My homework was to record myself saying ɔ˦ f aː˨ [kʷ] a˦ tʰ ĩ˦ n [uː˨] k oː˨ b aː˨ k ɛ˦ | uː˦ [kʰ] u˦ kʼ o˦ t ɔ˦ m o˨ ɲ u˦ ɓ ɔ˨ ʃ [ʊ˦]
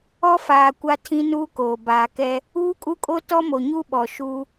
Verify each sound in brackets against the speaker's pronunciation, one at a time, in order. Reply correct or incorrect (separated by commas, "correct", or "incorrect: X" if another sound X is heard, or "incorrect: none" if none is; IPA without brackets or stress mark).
correct, incorrect: uː˦, incorrect: kʼ, incorrect: u˦